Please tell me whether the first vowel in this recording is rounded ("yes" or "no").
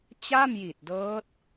no